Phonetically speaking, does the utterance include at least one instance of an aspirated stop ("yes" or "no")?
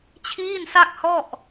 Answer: yes